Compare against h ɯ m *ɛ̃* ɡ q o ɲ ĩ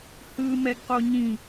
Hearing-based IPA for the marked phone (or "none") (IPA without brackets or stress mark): ɛ